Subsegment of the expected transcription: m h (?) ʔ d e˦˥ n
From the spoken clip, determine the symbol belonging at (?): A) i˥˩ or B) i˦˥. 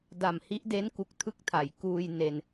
B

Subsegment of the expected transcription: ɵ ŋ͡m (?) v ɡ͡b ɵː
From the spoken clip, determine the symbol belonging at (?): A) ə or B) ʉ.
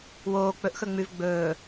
B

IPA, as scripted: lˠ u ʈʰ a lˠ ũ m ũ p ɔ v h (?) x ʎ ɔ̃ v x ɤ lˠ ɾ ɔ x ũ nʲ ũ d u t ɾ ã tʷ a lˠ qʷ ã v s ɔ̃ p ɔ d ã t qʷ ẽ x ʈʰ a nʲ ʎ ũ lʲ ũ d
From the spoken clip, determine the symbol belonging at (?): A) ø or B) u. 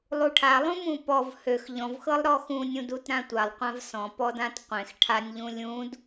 A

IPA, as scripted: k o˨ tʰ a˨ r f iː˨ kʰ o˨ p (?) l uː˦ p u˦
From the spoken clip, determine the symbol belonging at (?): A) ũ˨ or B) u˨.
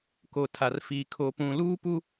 A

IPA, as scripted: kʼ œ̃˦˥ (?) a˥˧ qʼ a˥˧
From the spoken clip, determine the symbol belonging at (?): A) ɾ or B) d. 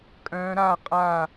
A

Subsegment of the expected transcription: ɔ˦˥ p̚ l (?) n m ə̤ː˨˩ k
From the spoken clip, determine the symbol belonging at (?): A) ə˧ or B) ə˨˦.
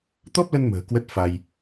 A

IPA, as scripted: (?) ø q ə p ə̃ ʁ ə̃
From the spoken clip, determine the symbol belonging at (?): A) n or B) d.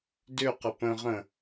B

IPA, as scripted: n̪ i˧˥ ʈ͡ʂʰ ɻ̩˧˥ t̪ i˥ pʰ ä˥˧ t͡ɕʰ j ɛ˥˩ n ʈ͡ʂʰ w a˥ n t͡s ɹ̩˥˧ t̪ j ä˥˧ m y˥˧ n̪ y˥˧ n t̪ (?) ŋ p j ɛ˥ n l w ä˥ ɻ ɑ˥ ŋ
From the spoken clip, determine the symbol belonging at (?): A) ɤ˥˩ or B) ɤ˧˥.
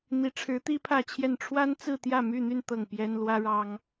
A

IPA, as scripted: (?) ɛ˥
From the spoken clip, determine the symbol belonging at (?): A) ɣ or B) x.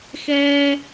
B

